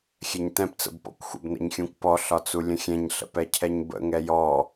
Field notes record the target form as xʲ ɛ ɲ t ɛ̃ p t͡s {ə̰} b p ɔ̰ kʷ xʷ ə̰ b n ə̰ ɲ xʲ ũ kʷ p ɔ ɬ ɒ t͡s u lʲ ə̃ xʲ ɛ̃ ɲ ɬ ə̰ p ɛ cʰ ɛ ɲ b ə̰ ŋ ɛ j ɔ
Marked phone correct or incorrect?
correct